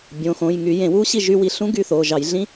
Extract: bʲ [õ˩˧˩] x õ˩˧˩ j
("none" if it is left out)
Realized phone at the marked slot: õ˩˧˩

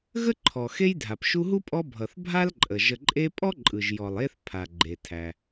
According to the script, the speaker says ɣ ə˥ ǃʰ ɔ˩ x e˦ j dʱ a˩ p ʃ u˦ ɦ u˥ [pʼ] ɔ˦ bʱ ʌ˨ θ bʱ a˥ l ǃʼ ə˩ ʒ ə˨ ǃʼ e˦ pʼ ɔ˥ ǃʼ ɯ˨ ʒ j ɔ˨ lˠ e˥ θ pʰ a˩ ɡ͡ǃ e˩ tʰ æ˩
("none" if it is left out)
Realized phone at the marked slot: pʼ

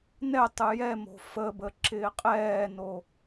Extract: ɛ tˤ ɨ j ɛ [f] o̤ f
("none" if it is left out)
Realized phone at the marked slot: m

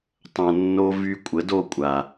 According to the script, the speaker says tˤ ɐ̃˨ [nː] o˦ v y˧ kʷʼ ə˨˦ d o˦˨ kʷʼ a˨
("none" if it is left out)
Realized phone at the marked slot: nː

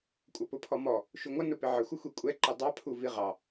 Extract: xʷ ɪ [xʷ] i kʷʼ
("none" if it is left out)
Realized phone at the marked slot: xʷ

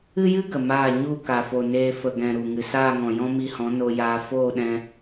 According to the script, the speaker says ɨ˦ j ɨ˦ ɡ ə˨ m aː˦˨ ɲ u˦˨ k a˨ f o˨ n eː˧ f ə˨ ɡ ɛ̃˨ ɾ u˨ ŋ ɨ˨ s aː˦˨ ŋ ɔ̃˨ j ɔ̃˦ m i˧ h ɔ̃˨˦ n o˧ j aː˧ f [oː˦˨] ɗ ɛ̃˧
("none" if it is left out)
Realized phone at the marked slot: oː˦˨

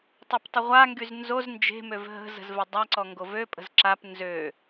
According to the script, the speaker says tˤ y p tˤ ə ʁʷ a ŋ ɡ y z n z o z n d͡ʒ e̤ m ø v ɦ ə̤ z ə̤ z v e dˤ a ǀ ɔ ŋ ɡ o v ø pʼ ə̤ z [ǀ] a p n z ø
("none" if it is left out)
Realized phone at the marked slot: ǁ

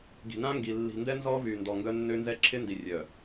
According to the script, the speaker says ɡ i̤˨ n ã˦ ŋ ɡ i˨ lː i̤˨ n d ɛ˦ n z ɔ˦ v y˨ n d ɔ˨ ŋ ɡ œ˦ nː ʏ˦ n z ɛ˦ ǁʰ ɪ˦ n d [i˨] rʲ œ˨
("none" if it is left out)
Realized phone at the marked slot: i˨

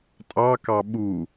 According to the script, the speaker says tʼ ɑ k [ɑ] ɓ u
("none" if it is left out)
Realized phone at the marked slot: ɑ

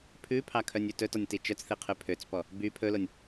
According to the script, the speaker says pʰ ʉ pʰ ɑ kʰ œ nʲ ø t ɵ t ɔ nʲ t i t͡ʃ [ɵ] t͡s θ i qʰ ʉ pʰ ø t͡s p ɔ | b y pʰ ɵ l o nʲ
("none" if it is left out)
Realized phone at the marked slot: œ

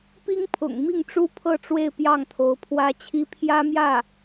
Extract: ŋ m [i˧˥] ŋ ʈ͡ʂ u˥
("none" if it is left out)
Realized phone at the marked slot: i˥˩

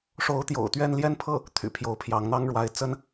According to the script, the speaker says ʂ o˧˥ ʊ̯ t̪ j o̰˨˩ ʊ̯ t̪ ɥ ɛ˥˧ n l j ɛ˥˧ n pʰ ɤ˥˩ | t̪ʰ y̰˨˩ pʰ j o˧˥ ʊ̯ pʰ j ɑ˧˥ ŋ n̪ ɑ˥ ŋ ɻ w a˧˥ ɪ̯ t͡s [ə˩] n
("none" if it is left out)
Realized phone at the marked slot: ə˥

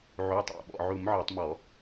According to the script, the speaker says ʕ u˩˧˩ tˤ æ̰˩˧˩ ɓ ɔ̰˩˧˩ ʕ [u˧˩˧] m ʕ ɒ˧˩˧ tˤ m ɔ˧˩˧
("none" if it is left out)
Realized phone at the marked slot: u˧˩˧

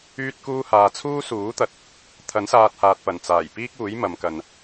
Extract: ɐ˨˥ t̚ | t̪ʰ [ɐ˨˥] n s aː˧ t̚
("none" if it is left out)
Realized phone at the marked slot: ɐ˨˥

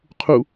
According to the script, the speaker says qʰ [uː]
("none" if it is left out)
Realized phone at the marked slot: u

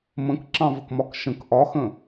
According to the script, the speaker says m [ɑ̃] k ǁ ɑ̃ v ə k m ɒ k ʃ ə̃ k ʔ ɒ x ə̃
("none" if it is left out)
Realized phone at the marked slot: ə̃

